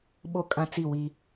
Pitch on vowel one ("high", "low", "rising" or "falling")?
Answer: high